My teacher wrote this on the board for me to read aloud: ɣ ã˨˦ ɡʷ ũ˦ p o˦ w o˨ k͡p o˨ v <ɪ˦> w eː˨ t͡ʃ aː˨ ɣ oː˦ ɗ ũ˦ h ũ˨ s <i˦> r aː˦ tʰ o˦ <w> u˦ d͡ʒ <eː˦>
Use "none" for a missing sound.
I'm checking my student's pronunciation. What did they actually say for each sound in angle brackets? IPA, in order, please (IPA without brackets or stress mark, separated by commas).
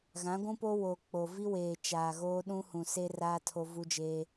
i˦, e˦, v, eː˦